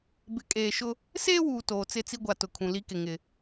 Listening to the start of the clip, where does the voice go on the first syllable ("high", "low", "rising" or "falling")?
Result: rising